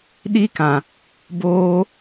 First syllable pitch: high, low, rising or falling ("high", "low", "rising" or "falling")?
high